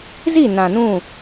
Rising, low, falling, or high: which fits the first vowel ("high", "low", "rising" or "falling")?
falling